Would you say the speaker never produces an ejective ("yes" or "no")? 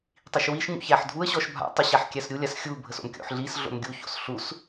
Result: yes